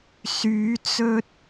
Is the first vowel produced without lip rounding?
no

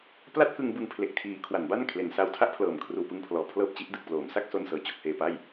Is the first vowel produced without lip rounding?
yes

